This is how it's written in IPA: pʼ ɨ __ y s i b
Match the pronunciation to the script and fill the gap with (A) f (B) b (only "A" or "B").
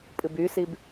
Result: B